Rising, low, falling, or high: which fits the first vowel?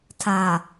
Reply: low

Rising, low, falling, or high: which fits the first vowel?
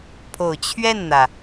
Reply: low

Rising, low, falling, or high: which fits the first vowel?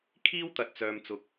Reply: high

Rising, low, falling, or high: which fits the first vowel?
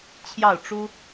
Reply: falling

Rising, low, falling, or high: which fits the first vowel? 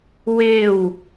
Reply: falling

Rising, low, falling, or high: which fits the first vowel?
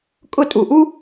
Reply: falling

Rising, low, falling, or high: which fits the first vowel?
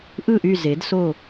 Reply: falling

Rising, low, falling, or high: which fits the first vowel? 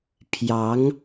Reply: rising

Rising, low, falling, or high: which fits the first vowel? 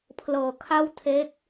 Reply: low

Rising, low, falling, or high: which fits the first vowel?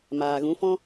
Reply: low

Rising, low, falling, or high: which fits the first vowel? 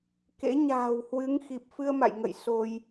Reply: rising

